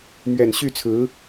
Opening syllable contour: low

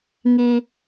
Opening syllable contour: high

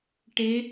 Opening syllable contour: rising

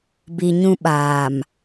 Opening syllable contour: low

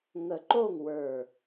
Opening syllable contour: low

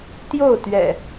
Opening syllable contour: falling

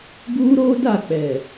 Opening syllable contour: high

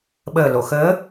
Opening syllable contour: low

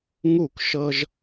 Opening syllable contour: falling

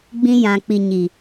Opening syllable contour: high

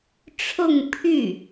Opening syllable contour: falling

